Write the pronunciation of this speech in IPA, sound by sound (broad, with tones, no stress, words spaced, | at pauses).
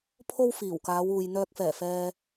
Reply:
pʰo˥wfiː˨˩w kaː˨˧wuː˨j n̪œː˧k̚fɛː˨˩fɛː˧